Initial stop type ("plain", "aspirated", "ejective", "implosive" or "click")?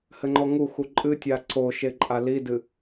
click